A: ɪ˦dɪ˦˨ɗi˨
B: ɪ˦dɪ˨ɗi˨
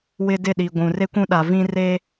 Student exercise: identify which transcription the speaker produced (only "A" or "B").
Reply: A